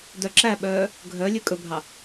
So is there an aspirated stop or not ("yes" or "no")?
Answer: no